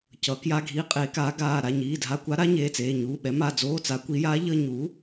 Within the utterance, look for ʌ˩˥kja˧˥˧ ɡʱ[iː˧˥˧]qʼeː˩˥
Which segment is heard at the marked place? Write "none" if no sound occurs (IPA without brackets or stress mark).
iː˧˥